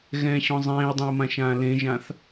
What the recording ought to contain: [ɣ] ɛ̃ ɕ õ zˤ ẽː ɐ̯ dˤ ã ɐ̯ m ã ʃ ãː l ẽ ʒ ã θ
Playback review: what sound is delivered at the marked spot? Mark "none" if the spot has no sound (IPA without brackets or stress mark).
ɣ